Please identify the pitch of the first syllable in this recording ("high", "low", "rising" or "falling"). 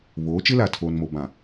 rising